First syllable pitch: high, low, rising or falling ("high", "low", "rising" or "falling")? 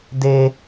high